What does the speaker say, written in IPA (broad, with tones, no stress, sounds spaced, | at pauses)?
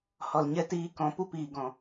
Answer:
h ɔ˨ l ɲ ɛ˧ t iː˧ k ɔ̃˨˦ p u˧ p iː˨ ɡ ɔ̃˨